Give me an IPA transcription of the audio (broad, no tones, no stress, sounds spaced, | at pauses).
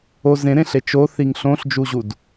o z ẽ ɾ ẽ ɬ e t͡ʃ o θ i ŋ ɬ õ ɬ d͡ʒ u ʑ u d